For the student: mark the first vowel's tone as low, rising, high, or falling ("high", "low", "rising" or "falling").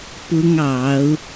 high